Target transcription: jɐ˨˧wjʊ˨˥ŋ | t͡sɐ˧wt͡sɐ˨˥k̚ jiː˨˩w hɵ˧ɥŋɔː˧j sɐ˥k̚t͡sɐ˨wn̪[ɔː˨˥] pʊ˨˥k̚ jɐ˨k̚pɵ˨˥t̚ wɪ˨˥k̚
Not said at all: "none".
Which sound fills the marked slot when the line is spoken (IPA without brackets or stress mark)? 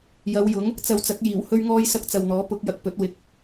ɔː˨˥